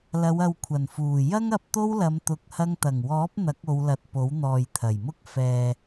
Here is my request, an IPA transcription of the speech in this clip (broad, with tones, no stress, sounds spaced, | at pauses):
l ɐ˨˧ w ɐ˨ w kʷʰ ɐ˨˩ n f uː˨˩ j ɐ˥ ŋ ɐ˧ p̚ t̪ o˥ w l ɐ˨˧ m t̪ ʊ˧ k̚ h ɐ˥ ŋ t̪ ɐ˨˩ ŋ w ɔː˨˥ p̚ n̪ ɐ˨˥ k̚ o˨˧ w l ɐ˨ t̚ p o˨˥ w n̪ ɔː˨ j t̪ʰ ɐ˨˩ j m ʊ˥ k̚ f ɛː˨